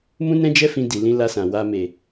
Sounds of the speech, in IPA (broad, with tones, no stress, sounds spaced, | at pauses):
m ũ˦ n ɛ̃˦ d͡ʒ ɛ˦ f ĩ˧ d i˨ l ĩ˧ l a˧ s ã˨ w a˧ m e˨